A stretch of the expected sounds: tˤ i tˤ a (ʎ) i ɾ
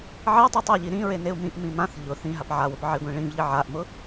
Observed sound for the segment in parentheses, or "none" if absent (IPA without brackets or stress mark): ʎ